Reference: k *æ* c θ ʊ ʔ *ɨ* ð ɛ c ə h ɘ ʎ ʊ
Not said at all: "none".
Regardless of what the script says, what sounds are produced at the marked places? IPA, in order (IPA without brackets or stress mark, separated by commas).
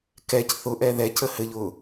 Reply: ɛ, ɛ